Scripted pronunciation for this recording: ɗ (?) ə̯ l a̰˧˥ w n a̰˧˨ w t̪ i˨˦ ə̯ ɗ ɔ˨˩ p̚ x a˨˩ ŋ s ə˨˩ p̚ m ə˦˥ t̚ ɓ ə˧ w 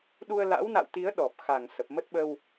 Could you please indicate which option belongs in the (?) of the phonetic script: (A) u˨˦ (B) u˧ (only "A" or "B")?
B